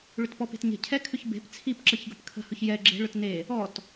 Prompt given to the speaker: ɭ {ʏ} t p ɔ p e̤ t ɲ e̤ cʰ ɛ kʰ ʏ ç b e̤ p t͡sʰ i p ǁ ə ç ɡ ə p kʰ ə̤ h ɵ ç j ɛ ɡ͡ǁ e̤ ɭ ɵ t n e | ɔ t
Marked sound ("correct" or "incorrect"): correct